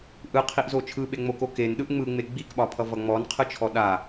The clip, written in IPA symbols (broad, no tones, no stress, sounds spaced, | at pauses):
ʔ ɯ qʰ i ʔ z o t͡ʃʰ ɯ ɓ e ŋ͡m o k o k e n ɗ ɯ ʔ ŋ͡m ɯ ŋ͡m e ɡ͡b i k ɓ ɒ pʰ ʌ v ʌ ŋ͡m ɔ n qʰ ɯ t͡ʃʰ ɔ ɗ a